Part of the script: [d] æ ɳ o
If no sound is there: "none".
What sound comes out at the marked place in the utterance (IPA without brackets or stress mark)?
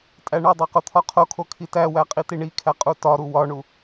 tʼ